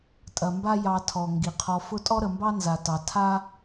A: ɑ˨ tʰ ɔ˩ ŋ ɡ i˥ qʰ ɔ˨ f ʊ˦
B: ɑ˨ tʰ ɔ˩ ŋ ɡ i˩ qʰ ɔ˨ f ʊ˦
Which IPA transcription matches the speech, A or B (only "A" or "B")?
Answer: B